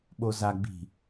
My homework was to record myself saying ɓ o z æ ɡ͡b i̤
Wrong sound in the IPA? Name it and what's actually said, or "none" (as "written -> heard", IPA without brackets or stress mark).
æ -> a